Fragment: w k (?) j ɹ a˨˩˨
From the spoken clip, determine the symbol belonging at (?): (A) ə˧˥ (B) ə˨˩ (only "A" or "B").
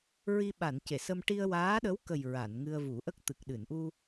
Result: B